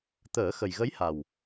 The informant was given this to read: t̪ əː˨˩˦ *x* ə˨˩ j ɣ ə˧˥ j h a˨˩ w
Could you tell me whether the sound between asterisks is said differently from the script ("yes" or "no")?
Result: no